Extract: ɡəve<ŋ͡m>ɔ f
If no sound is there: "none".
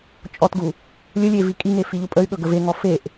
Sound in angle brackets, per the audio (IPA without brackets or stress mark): ŋ